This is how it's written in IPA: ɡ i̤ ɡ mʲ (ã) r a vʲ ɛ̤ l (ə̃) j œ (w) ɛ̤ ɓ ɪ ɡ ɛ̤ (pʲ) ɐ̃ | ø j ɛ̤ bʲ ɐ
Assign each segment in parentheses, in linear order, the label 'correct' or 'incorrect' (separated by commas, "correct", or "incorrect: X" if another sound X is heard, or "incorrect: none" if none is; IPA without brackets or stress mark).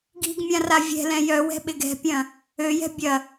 correct, incorrect: ɛ̃, correct, correct